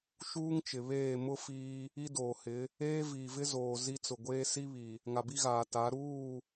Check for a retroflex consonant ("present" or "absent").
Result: absent